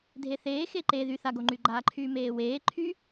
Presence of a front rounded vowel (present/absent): present